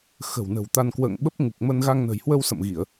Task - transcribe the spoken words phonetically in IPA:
x ə̤˨˩ w n ə̤˨˩ w t̪ a˧ n k w ə̰ː˧˨ ŋ ɓ ə˦˥ p̚ ŋ u˨˩ k̚ m ə˧ n ɣ a˧ ŋ n ə̤˨˩ j h w ə˧ w s ə̰˧˨ m ɣ i˧˩˨ ə̯

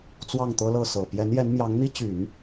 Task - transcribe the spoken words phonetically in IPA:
t͡s w ɑ˥˩ ŋ t̪ ɤ˥ l ɤ˥˩ s ɤ˨˩ p j ɛ˧˥ n j ɛ˧˥ n m j ɑ˧˥ ŋ n̪ i˥ t͡ɕ y˨˩˦ n

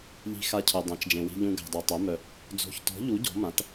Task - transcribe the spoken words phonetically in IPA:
ʎ i̤˨ x a˨ cʰ œ˨ dˤ ã˩˥ t͡ʃ d͡ʒ ẽ˨ w i̤˨ ʎ ũ˨ ɡ a̤˨ dˤ o˨ tˤ œ˩˥ m œ˨ | d͡z o̤˩˥ ç t ɔ̤˩˥ ʎ u˩˥ ɟ ɔ̤˩˥ m ã˩˥ t

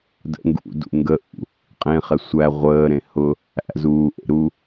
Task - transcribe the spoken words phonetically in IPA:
d ə̰ ŋ ɡ ṵ d ṵ ŋ ɡ ə ʔ ṵ | qʼ ẽ χ ɛ sʷ æ ʁʷ əː ɾ ẽ h ʊ | æ̰ z uː ʔ ḛ ɾ u

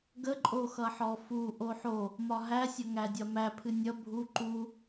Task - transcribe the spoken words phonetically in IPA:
ɡ ə ǃʼ o x ʌ ħ ɔ f u ʔ o ħ o | m ɒ ɦ æ sʲ ʌ ŋ æ dʲ ɒ m æ pʰ ɨ nʲ ʌ bʱ u ǃ u

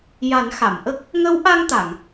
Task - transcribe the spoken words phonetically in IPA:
j a˨˩˦ n x a˨˩˨ m ʔ ə˦˥ k̚ | ŋ ə˧˥ w ʔ a˧ ŋ t̪ a˨˩˨ ŋ

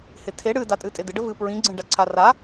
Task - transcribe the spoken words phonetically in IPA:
h ɪ tʰ e ɽ ɨ d a tʼ ɨ tʼ ɪ d ɪ ɖ ə v ɨ p ɹ ĩ ɡ͡ǀ ẽ ɖ a ǀʰ a r a

